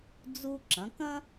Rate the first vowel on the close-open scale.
close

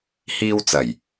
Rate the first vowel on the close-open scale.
close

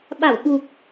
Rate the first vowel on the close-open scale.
open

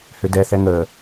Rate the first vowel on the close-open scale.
close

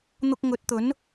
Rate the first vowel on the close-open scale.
close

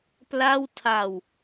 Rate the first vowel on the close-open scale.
open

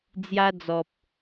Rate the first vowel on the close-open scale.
open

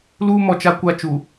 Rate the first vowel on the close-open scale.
close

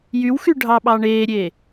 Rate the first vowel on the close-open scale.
close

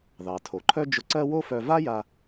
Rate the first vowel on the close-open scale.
open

